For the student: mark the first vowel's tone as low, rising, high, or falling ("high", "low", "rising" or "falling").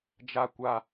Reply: low